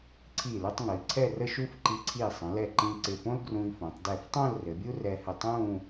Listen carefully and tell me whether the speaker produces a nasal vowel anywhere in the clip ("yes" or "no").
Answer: yes